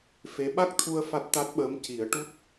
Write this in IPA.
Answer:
f e˧˥ ɓ a˦˥ k̚ t̪ʰ u˧ ə̯ f a˦˥ t̚ t̪ a˦˥ t̚ ɓ əː˧˥ m c i˨˩˦ ə̯ ʈ u˦˥ t̚

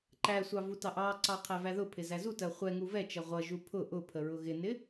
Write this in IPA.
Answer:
ǃ æ sʷ ɑ v u t ɑ ʔ ɑ ǀ ɑ qʰ æ v æ ð ʊ pʰ ɪ z æ z u t ɜ χʷ ɛ ŋ u v ɛ t͡ʃ ʌ ʁʷ ʌ ʒ u pʰ ʊ ʔ ʊ pʰ ə ɹ ʊ ɣ ɪ n ɪ

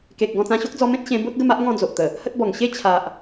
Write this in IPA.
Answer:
k e˨ k̚ ɡ ɔ̃˧ t͡s ã˧ ɕ o˦ k̚ d͡z ɔ˧ m ẽ˦ t̚ ɕ ẽ˧ b o˦ t̚ ɡ ə˥˧ m a˦ ʔ ŋ ɔ̃˥˧ d͡z o˨ ʔ t̪ ə˨˩ | h ə˦ t̚ b ɔ˨˩ ŋ ɕ e˦ t͡ɕʰ a˨ ʔ

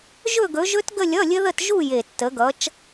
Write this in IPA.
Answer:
ʒ ɵ˥˧ ɡ ɵ˨˦ ʒ ɵ˦˥ t ɡ ə˥˧ lʲ ʌ˧˥˧ lʲ ɘ˦˥ ð ə˥˧ t ʒ u˥˧ j e˨˩ tː ə˨˦ ɡ ʌ˨˦ t͡ʃ

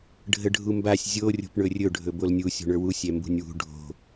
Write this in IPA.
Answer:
ɖʱ ə ɖʱ u m b a sʲ zʲ o rʲ o̤ p ɳ ɵ rʲ ɵ ɖʱ ɵ b o l nʲ u sʲ o̤ ɳ ə˞ w u sʲ ɛ m b ṳ nʲ w ṳ ɖʱ o̤

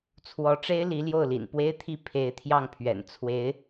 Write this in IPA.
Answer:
t͡sʰ w ɔ˧˥ ʈ͡ʂ e˥ ɪ̯ l i˧˥ l j o˥˩ ʊ̯ l ḭ˨˩ n p w e˥ ɪ̯ t̪ʰ i˥ pʰ e˧˥ ɪ̯ t̪ʰ j ɑ˥˩ ŋ pʰ ɥ ɛ̰˨˩ n t͡sʰ w e˧˥ ɪ̯

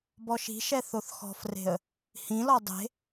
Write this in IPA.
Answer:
b ɔ ʃ i̤ ʃ ɛ θ o θ x ɔ̤ f r e̤ ə̯ | h ĩ l ɔ dˤ e̤

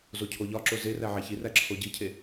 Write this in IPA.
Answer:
z o cʰ o ʎ ɒ ǁ o z e r æ ʕ æ ç i r æ ǁʰ o ɟ i cʰ e

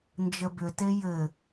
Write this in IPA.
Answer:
n d͡ʒ ə b ʏ t e j ɘ

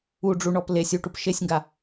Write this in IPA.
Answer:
u ɖ͡ʐ u ɳ ɔ p l e sʲ u ʈ u p ʃ e sʲ ŋ ɡ a

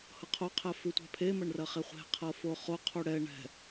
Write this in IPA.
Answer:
h ɤ qʰ o qʰ ɛ f ʉ tʷ ɛ̤ pʰ e m ɐ ɳ r ɐ χ e χʷ e̤ qʰ ɤ f o χ o qʰ u ɽ ɛ ɳ ɛ̤

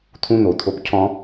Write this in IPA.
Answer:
t̪ʰ ũ˦ n̪ o˨ t̪ʰ o˦ p cʰ ɔ̃˧

